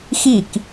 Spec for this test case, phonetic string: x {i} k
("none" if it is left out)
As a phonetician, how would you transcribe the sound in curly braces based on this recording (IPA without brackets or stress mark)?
i